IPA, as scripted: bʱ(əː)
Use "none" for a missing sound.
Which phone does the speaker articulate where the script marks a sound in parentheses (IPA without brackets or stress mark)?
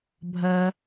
ɐː